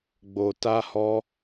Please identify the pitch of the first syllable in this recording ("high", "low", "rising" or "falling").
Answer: low